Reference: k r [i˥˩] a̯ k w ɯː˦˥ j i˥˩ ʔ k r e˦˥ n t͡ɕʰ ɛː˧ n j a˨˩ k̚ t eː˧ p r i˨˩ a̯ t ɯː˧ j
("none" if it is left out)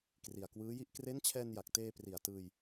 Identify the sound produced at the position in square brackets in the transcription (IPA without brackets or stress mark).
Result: i˨˩